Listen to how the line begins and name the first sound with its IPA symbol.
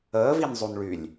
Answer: əː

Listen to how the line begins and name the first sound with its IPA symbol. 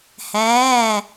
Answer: h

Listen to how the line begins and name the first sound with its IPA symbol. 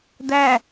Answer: d̪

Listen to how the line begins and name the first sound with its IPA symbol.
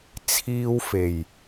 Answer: t͡sʰ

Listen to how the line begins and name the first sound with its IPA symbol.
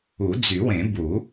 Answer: u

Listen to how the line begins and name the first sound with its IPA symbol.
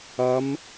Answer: ɐ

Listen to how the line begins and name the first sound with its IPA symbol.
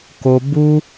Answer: k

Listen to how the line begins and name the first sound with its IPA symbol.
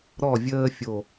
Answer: ɾ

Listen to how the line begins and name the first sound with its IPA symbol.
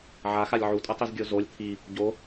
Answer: ʕ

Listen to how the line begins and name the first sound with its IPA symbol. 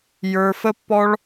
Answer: j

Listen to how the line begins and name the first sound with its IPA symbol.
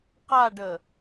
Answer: q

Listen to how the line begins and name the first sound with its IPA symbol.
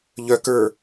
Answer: ʎ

